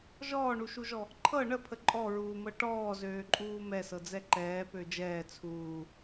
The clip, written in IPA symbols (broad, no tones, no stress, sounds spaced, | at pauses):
ʒ ɔː ɳ u ʃ u ʒ ɔ | ǃʰ ɤ ɳ ə pʰ ə ǃʼ ɔ ɹ uː m ɤ ʈ ɔː z øː ǃʼ uː m ɛ s ɤ d͡z ɛ ǃ ɛː p ø d͡ʒ ɛː t͡sʰ uː